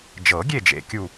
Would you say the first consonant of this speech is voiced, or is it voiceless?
voiced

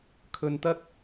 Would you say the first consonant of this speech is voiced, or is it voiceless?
voiceless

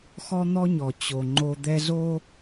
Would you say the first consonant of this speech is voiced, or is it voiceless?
voiceless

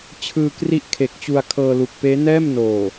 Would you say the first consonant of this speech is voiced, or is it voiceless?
voiceless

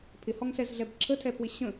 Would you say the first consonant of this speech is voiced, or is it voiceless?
voiceless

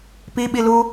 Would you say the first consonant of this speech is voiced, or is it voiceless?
voiceless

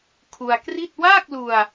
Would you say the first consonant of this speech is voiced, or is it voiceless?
voiceless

